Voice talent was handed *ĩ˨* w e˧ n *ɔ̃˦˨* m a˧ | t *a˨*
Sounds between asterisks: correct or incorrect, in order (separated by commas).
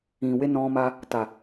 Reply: correct, incorrect, correct